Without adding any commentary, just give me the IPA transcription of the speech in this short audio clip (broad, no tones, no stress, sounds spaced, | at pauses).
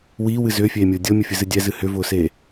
w iː w ɨ z ʏː fʲ eː mʲ ʊː dʲ ɤ mʲ ʊ fʲ ɨ z ɨ dʲ ɛ z ɨ h ʏ v ʊː s eː